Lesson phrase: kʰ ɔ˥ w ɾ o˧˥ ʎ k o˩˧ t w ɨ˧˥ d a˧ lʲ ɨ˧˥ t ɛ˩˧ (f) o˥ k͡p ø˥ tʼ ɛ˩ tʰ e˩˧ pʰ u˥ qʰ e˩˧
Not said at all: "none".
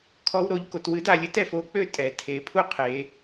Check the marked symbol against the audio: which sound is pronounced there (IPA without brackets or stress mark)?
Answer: f